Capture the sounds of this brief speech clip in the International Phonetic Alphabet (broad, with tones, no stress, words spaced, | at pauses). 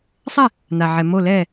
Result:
sˤɛ˥˩ | n̪a˩ ʕɛ˩ mo˧˩lɛː˧˩